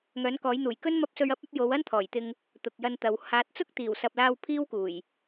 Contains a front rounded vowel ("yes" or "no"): yes